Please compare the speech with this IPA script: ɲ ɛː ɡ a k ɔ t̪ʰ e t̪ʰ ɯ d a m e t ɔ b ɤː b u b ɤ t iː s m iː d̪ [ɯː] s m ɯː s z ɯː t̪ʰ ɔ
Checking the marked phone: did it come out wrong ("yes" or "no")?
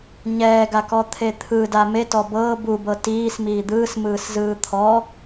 no